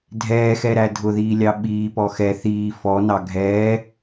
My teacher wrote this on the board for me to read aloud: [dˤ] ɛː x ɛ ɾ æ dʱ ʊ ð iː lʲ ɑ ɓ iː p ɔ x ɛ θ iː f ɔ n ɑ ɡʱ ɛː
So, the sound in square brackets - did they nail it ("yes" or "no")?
no